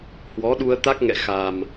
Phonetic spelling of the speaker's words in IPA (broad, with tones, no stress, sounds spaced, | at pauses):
h w ɔ˨˦ ɗ u˧ ə̯ t̪ a˦˥ k̚ ŋ ɛ̰˧˨ x a˨˩ m